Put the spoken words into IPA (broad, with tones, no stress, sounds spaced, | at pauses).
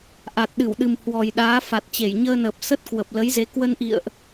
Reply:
ʔ a˨˩ t̚ ɗ ɨ˧˩ w ɗ ɨ˨˩ m h w ɔ˨˩ j ɗ aː˨˦ f a˨˩ t̚ t͡ɕ e˧˩ j ɲ əː˧ n əː˨˩ p̚ s ə˦˥ t̚ k w ə˨˩ p̚ l ə˨˦ j z e˨˦ k w ə˧ n ʔ ḭ˧˨ ə̯ ʔ